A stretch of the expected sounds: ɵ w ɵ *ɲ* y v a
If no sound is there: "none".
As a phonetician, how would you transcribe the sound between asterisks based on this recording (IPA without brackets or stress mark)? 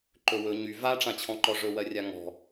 ɲ